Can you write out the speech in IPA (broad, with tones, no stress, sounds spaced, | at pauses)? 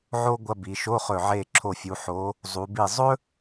ʕ o˥ ɡʷ ɐ˧˥˧ b i˩˧ ʃ o˧˥˧ χ ɵ˧˩ ʕ e˧˩ ǁʰ o˧˩ fʲ u˩˧ ħ o˩˧ | zˤ u˩˧ b i˧˩ zˤ ɵ˥